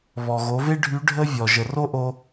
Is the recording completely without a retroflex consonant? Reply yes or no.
no